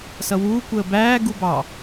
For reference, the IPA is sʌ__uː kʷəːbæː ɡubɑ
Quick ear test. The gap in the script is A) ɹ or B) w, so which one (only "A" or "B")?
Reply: B